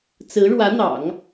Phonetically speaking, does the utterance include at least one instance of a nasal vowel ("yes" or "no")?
no